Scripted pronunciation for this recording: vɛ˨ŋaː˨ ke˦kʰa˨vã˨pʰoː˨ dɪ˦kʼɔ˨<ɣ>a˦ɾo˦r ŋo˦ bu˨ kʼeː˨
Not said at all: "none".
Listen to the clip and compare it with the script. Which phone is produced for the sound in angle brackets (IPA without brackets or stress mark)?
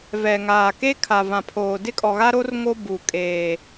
ɣ